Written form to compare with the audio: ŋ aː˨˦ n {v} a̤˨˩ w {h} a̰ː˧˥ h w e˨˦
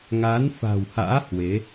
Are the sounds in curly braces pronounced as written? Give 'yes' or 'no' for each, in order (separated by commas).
no, yes